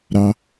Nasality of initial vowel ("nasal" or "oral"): oral